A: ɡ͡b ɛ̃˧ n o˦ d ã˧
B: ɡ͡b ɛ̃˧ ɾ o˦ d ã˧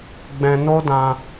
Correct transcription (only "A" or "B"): A